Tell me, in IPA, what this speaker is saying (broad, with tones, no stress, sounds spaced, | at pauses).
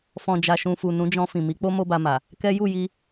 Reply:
f ɔ̃˨ d͡ʒ a˨ ʃ ũ˨ f u˨ n ũ˨˦ d͡ʒ ɔ̃˧ f ĩ˨ m i˨˦ k͡p o˦ m o˦ b a˧ m a˨ | k ɛ˦ j u˦˨ j i˧